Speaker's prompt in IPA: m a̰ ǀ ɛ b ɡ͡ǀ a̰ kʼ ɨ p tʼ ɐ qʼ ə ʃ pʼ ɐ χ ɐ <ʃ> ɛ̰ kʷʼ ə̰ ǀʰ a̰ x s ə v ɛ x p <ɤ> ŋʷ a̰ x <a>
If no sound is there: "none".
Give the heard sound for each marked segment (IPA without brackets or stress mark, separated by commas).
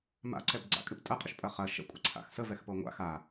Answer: ʃ, ɤ, a